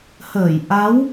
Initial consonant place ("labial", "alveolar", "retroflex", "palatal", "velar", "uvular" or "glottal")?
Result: glottal